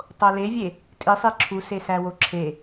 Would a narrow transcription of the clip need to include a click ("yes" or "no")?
yes